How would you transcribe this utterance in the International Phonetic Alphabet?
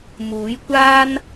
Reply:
m uː˨˥ j kʷ aː˥ n

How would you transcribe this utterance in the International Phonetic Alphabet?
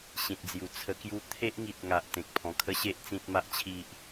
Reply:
ɕ ĩ˨ t̚ d͡z j u˨˩ t͡sʰ ə˧ k j u˦ t̪ʰ e˦ ʔ ŋ i˨ t̚ ŋ a˨ ʔ t̪ ẽ˨ k̚ pʰ ɔ̃˨˩ kʰ ə˦ ɕ e˦ ʔ t͡s ĩ˦ t̚ m a˦ ʔ t͡ɕʰ i˦ ʔ

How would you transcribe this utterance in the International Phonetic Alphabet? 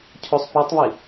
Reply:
cʰ o sˤ p u tˤ β i

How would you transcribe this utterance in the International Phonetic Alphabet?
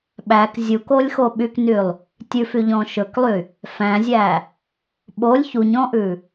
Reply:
ɓ æ k zʲ u k o lʲ x o ɓ y k n y lˠ | tʲ ʉ f y ʎ ɔ̃ ʃ ɵ k lˠ y | f æ̃ zʲ æ | ɓ o lʲ ç u ɲ ɔ̃ ʔ ʉ

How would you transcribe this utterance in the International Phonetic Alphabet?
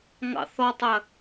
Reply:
ŋ ɑ̰ θ ɔ tˤ ɜ

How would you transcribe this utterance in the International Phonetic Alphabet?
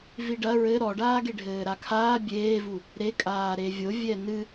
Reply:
v i ɖ ɐ ɹ ɘ ɾ ɔ ɖ aː ɡ e ɖʱ ɘː ɾ a kʰ aː bʲ eː v u | ɾ e kʼ aː ɾ e vʲ o vʲ ɛ n ɨ

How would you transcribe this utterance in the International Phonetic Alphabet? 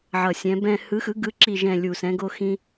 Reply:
ʕ ʌ˧˩ sʲ ɛ̃˨˥ b ɛ̃˥˧ h ɯ˨˥ x ɯ˨˥ ɡ ɯ˨˥ ǁ i˧˩ ʒ ɛ̃˧˩ lʲ u˧˩ s ɛ̃˨˥ ɡ o˥ x ĩ˥

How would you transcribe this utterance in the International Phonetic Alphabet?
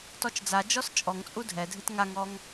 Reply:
t ɔ t͡ʃ d͡z a d͡ʒ ɔ s t͡ʃʼ ɔ ŋ t͡sʼ u dʱ ɛ dʱ ɨ t ŋ a ŋ ɔ ŋ

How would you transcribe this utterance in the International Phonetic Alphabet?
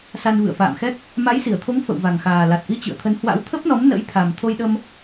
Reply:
s a˧ n v ɨ̰˧˨ ə̯ f a̰ː˧˨ m x ɛ˦˥ k̚ | m a˨˦ j s i˧˩ ə̯ t̪ʰ o˨˦ ŋ f ə̰˧˨ w v a˨˩ ŋ x aː˨˩ l a˨˩ t̚ ʔ i˧ t͡ɕ ɨ̰˧˨ ə̯ t̪ʰ ə˨˦ n h w a̰˧˥ w t̪ʰ ə˦˥ p̚ n ɔ˨˦ m n ə̰˧˥ j t̪ʰ a˨˩ m t̪ʰ o˧ j ɗ ə˧ m

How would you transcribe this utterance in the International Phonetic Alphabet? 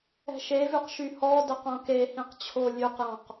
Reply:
ɛ̤ ʃ e v ʉ q ʃ y h ɔ d ɛ q õ k e h ĩ q t͡ɕʰ o lʲ ʉ q j ɔ̃ q

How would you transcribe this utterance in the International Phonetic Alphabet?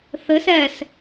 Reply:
θ ɘ s ɛ s

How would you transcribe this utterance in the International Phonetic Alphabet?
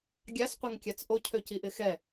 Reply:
ɡʲ a s qʷ ɛ ŋ kʲ a t͡s ʔ o cʰ ø c i ʔ ɪ x ɛ

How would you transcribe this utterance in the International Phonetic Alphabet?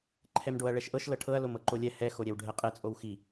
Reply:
ǃʰ ɛ m ɖ o ɐ̯ ɭ ɛ ʃ ʔ ɤ ʃ l ɤ ʈʰ ɤ ɐ̯ l o m ɤ ǃ o lʲ ɛ h ɛ x o ɾʲ ɛ w ɖʱ ɛ qʼ ɛ t͡sʼ o w x i

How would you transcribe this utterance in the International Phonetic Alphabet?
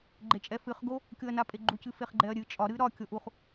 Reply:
ɡ͡ǃ e t͡ʃʼ ɛ f ɨ χ ɡ o | kʲ o ɐ̯ n a pʼ e ɡ͡ǃ u c ɨ f e χ ɡ͡ǃ ɛ ɐ̯ ɾʲ ɨ t͡ʃʼ ɒ ɾ ɨ ɾ ɒ kʲ o ʔ u χ

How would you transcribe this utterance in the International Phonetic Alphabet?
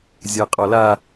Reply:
zʲ ɐː qʼ ɔ l a

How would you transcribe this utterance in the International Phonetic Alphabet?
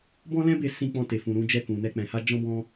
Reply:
b ɔ̃˦ l ɛ̃˦ b e˧ s ĩ˧ k͡p ɔ̃˧ t e˨ f ũ˨ ɾ ũ˧ d͡ʒ ɛ˧ k ũ˨ n ɛ˧ k͡p ɛ̃˨ h a˧ d͡ʒ ɔ̃˦ b ɔ̃˦

